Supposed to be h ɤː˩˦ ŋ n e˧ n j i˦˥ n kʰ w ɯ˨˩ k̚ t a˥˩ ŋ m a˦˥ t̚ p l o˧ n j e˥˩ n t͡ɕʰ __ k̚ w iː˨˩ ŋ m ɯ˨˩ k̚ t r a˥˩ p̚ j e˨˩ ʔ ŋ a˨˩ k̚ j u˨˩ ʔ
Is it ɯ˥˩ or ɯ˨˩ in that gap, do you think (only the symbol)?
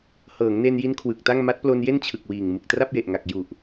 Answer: ɯ˨˩